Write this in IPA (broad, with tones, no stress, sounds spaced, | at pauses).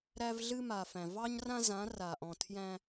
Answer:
ɾ æ˦ v ɮ ɨ˦ m a˨ f æ̃˨ v ɑ˦ ɲ r ã˦ z ã˨˦ r a˨ ʔ ɔ̃˨ tʰ j æ̃˦